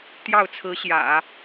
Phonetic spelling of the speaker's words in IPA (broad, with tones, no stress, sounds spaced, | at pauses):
t̪ j ɑ˥˩ ʊ̯ t͡sʰ ɹ̩˧˥ ɕ j ä̰˨˩˦